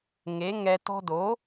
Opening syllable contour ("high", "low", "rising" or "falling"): rising